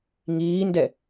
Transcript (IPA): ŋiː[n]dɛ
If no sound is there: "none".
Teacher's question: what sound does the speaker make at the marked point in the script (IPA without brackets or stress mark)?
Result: n